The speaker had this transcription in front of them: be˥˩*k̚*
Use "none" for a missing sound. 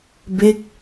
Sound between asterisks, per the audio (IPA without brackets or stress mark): k̚